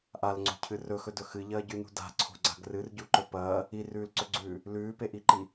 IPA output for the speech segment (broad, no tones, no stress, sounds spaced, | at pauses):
ʔ a l ŋ͡ǀ o̤ cʰ ɨ r ɵ x ɵ d ɵ x ɨ ʎ ɐː ɟ ʉ n ṳ d a̤ ǀʰ o̤ ɡ͡ǀ a̤ ɡ r ɨ r ɟ u ǃ ɵ p ɐː | i r ʉː l ǀ ɵ ɡ͡ǀ ʉː | l ʉː p e ʔ i ǃ i